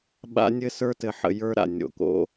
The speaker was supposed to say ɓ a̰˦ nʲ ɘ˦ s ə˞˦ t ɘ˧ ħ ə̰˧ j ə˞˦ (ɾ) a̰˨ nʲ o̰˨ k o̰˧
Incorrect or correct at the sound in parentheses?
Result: correct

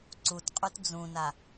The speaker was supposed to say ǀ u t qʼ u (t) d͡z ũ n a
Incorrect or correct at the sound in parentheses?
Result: correct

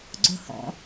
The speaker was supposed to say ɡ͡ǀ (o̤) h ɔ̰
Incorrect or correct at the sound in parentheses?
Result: correct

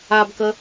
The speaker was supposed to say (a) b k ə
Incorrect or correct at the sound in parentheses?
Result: correct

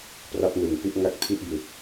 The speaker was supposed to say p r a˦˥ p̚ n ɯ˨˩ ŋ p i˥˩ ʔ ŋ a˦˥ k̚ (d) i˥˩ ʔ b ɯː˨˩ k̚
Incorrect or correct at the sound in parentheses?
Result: incorrect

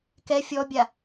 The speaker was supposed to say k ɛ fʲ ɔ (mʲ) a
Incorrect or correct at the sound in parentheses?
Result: incorrect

